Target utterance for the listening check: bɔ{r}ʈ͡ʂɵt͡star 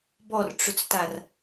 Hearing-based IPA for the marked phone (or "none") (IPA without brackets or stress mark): r